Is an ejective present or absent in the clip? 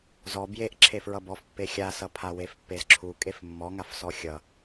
present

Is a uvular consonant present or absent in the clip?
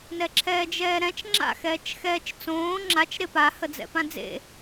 absent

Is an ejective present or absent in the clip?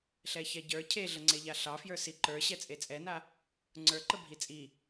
present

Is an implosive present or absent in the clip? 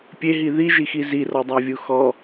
absent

